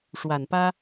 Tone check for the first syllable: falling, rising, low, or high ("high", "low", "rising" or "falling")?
low